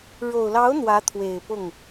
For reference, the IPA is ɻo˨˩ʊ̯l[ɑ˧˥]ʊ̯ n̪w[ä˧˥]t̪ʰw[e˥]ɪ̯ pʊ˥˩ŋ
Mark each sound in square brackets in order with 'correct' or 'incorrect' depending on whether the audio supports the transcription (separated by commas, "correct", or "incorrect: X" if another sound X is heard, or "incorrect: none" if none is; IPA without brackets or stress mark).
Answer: correct, correct, incorrect: e˨˩